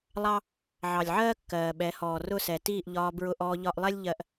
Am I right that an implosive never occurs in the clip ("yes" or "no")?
no